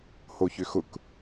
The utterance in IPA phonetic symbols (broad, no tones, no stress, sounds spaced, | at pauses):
h o ç ʏ x ʊ k